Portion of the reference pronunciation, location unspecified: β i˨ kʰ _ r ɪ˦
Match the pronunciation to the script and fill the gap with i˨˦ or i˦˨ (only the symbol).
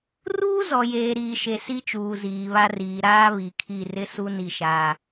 i˦˨